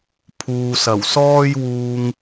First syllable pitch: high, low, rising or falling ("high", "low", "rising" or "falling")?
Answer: low